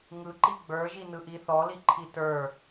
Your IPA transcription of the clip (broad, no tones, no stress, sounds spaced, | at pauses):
ŋ ɯ ǃ i ɡ͡b ə˞ ʒ i n ɯ ʔ i θ ɔ l i ǃʰ i t ə˞